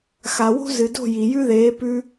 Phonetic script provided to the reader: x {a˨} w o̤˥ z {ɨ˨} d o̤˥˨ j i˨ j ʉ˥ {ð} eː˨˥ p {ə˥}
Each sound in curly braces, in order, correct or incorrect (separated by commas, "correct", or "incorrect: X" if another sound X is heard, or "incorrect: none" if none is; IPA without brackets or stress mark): correct, correct, correct, incorrect: ʉ˥